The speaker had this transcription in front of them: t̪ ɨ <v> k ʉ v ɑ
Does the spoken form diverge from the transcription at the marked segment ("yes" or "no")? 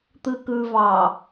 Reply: yes